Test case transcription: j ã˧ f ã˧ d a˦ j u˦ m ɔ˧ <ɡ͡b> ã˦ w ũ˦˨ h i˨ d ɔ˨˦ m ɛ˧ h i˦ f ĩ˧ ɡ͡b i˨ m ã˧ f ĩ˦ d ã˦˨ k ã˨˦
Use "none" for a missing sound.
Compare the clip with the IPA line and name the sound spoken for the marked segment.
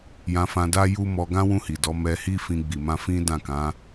ɡ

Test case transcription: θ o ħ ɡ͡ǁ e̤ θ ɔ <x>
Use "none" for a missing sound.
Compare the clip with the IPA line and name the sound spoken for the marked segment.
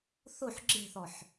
ħ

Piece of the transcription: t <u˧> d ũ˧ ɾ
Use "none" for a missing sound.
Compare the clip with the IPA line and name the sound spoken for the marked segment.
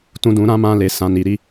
ũ˧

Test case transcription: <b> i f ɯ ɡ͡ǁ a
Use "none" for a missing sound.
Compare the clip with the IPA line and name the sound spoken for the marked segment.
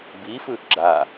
b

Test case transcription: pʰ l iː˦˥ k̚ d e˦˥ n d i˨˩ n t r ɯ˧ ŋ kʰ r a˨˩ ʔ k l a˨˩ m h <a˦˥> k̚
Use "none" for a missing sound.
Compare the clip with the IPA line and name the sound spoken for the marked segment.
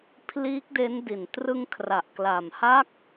a˦˥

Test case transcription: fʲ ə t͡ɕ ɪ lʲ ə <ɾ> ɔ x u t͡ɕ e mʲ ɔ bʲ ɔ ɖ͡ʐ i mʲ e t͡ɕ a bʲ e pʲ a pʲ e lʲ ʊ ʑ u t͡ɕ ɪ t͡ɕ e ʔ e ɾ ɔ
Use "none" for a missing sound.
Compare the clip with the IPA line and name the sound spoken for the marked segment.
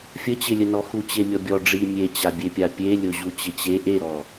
n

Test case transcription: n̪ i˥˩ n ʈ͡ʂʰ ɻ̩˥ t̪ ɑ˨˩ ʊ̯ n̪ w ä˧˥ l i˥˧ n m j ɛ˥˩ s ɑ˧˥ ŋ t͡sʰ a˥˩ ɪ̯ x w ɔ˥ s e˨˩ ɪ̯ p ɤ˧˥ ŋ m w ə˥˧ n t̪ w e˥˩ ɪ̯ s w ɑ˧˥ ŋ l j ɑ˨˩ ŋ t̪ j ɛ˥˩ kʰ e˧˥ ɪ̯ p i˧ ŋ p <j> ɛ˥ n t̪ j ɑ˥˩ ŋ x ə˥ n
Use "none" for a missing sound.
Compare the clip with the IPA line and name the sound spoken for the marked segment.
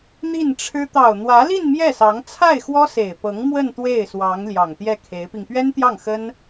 ɥ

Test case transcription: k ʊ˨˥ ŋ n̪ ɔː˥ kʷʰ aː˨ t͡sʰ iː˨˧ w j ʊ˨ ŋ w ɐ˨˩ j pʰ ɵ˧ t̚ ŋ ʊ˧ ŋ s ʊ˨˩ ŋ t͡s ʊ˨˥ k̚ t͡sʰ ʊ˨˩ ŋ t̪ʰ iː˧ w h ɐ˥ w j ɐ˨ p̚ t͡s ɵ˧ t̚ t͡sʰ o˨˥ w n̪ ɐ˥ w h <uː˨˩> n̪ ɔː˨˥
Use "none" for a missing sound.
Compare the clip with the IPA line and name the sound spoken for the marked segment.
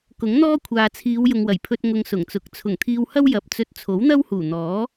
uː˨˩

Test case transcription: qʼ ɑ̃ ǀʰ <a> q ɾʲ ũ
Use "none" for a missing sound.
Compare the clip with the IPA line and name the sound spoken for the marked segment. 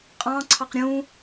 ɑ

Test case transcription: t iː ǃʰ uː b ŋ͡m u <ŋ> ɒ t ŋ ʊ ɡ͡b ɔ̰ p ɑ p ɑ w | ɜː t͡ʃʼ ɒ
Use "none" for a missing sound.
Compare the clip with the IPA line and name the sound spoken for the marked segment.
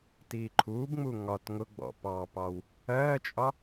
ŋ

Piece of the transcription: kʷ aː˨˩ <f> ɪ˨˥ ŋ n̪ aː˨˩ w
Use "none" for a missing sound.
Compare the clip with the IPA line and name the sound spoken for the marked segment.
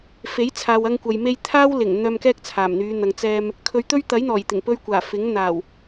f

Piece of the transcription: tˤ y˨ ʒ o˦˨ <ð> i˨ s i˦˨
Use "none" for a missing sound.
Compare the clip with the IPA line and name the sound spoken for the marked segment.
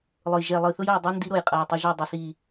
dˤ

